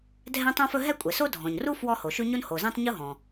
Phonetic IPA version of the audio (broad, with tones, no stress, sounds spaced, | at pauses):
dʱ ɛ̃˥ tˤ õ˥ f ɵ˥ ɦ ɛ˥ kʷʼ ɛ˩ s o˥ dʱ ɔ̃˩ ɲ r u˥ f w ɔ˥ h o˩ ʃ ʉ˥ ɲ o˥ n h o˩ z ɛ̃˥ tˤ ɲ u˥ ɦ ɔ̃˩